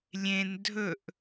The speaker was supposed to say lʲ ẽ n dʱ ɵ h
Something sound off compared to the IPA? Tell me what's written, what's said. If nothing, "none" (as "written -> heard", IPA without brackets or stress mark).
h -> ʔ